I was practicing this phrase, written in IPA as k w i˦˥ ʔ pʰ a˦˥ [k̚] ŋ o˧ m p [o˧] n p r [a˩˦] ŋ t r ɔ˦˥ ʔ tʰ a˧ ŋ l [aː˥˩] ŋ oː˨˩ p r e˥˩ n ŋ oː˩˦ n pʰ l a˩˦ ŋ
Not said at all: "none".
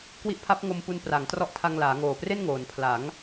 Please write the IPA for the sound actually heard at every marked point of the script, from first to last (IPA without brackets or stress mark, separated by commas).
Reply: p̚, u˧, a˩˦, aː˩˦